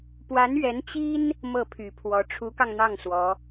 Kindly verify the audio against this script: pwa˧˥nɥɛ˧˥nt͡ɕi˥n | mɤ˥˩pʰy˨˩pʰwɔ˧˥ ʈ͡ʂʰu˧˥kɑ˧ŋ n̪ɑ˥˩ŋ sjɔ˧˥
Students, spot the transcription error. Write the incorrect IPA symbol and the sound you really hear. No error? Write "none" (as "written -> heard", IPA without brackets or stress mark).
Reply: j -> w